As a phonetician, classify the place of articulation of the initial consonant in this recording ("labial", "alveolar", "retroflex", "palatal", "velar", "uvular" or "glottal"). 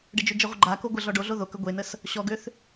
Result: retroflex